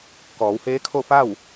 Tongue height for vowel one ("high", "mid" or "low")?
mid